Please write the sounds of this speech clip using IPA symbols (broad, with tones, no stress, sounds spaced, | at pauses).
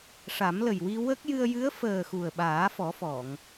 ʂ a˨˩˦ m l ə˨˩ j w i˧ w ə˦˥ k̚ j ɨ˧ ə̯ j ɨ˧˥ ə̯ f əː˨˩ x u˨˩ ə̯ ɓ aː˨˩˦ f ɔ˨˩˦ f ɔ˨˩˨ ŋ